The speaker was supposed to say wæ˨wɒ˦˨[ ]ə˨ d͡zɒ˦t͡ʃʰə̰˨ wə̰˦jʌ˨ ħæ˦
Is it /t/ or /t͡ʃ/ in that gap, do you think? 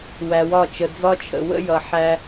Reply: t͡ʃ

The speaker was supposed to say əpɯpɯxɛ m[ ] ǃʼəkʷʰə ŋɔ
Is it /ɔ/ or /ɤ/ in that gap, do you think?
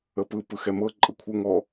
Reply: ɤ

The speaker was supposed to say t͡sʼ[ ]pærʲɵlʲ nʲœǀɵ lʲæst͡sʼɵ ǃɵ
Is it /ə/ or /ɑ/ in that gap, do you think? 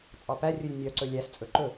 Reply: ɑ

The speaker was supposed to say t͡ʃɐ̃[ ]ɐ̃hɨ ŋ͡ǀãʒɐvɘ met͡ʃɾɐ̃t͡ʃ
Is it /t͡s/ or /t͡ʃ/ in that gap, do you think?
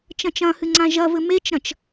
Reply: t͡ʃ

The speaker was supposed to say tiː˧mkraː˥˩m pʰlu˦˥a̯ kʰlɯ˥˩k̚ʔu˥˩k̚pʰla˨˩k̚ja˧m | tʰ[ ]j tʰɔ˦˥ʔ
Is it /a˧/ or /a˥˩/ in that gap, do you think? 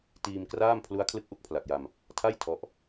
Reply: a˥˩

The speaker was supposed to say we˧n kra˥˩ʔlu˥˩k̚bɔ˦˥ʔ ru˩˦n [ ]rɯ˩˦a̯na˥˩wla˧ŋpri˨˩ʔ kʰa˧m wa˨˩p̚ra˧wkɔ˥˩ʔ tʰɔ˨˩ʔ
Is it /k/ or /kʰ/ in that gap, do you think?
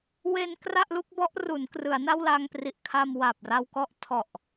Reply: k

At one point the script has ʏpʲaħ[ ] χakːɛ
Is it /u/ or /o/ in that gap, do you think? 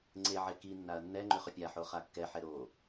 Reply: o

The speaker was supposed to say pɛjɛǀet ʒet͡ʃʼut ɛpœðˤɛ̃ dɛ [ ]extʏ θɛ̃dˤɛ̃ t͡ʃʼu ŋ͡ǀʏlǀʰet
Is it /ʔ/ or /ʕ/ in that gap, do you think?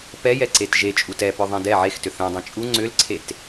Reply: ʕ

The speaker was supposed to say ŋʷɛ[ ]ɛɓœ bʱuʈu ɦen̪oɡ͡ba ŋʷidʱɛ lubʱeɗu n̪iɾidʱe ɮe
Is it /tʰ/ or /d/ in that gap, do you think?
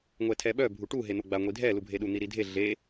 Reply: tʰ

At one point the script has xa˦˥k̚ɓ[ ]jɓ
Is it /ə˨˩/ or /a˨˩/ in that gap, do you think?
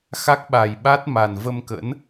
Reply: a˨˩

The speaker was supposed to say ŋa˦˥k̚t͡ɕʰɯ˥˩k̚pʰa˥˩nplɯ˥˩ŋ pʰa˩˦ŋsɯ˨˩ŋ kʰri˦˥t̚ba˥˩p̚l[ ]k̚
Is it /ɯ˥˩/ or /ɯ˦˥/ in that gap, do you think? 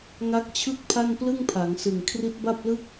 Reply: ɯ˥˩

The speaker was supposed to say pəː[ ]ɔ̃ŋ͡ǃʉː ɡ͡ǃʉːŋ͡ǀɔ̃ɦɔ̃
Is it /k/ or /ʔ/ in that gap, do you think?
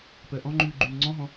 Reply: ʔ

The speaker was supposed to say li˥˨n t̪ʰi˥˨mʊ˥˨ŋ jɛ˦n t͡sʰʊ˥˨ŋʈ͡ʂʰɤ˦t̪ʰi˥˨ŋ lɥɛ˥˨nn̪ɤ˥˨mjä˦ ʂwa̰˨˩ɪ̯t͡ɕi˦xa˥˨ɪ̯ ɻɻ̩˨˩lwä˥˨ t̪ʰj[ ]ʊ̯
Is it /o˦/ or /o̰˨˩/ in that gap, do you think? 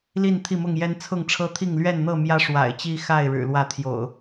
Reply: o̰˨˩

